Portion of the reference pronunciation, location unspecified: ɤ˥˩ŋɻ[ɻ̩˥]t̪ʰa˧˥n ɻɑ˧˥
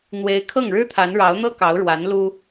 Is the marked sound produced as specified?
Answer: yes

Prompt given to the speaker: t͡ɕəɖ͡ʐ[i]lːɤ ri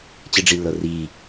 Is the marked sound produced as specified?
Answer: yes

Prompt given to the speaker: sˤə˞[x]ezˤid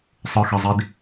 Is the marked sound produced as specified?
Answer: yes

